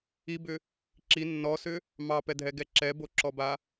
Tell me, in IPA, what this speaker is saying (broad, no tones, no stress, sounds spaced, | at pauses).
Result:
i b ʏ | ǁ i nː ɔ s ʏ | m ɑ p ɛ dʱ ɛ ɡ ɛ ǁ ɛ b o ǁ ɔ b a